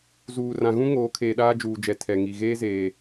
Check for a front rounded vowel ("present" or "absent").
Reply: absent